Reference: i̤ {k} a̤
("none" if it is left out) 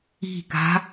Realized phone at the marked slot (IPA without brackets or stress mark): k